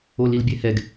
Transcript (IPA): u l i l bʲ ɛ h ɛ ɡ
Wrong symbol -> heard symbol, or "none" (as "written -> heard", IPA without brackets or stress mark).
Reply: u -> o